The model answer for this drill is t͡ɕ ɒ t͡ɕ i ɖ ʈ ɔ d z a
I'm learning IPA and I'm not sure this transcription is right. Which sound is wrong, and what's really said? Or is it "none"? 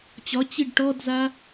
none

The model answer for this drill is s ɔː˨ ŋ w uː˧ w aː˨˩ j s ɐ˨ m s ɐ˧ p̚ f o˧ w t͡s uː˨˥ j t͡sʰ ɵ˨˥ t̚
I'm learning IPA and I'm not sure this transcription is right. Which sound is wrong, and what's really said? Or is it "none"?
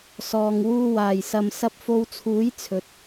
t͡s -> t͡sʰ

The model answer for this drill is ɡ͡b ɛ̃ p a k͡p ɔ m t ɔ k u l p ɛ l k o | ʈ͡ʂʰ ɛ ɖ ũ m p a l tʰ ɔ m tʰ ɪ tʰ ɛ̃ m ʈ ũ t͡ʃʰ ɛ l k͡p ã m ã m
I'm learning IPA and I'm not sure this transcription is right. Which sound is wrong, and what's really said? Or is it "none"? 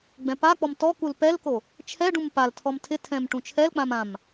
ʈ͡ʂʰ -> t͡ʃʰ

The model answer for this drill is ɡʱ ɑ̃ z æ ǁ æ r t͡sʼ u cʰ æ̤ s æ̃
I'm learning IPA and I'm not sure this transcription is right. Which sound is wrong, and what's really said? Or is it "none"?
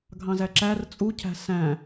none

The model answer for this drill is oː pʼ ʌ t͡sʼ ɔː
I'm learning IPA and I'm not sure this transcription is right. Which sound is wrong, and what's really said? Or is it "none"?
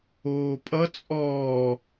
none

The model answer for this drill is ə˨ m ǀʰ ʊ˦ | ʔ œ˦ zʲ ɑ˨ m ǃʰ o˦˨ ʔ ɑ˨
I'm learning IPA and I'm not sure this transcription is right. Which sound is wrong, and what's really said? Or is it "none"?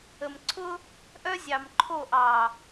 none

